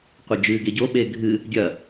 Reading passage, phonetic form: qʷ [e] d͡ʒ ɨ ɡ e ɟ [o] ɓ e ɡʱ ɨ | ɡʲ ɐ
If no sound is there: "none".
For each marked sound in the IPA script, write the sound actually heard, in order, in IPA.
e, o

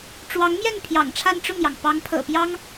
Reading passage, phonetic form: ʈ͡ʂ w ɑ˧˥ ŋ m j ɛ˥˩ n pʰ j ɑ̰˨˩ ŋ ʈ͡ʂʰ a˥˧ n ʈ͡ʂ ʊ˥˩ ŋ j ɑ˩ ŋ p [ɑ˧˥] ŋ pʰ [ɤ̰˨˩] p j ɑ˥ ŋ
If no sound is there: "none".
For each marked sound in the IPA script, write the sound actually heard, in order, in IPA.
ɑ˧˥, ɤ̰˨˩

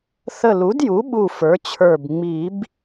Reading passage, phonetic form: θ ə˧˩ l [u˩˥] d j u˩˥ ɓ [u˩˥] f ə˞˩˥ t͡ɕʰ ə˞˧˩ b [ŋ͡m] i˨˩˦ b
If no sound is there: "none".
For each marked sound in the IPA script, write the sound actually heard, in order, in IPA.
u˩˥, u˧˩, ŋ͡m

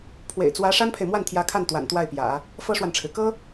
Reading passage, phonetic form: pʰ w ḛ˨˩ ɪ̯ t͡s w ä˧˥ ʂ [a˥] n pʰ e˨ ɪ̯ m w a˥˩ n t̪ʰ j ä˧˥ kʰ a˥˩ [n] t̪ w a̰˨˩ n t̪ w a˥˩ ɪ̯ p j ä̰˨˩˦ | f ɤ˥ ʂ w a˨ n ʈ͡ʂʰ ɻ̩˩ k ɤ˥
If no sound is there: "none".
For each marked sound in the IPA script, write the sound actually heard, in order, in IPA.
a˥, n

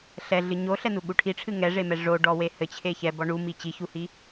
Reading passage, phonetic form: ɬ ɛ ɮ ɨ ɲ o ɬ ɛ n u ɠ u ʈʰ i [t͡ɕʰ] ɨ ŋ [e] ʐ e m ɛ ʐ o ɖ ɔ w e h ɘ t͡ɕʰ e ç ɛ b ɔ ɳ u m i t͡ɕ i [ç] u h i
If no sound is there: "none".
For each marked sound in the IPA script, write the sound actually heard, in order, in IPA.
ʈ͡ʂʰ, ɛ, ç

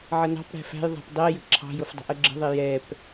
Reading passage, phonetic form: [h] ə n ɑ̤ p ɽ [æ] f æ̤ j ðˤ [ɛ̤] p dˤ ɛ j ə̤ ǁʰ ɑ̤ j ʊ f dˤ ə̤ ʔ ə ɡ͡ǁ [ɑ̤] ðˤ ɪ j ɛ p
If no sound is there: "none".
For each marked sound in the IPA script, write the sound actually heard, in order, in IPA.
ʕ, æ̤, æ̤, ə̤

